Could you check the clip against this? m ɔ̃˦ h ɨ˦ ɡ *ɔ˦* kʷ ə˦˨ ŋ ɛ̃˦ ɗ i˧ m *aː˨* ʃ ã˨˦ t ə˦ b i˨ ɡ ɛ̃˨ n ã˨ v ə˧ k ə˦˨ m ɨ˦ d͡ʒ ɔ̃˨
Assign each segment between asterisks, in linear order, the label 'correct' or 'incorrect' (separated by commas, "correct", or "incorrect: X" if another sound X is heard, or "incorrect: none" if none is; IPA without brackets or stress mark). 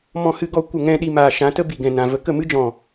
correct, correct